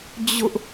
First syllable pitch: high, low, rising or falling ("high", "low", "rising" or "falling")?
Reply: high